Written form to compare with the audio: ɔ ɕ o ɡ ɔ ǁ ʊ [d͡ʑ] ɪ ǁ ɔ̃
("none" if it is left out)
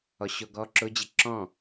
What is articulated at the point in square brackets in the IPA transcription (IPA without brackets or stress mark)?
d͡ʑ